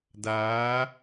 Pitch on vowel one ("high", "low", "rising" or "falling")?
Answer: rising